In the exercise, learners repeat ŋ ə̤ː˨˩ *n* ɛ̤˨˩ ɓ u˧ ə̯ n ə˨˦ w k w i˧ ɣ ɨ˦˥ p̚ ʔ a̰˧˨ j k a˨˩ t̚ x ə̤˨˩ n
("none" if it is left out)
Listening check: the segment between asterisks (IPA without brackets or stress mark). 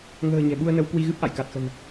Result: ɲ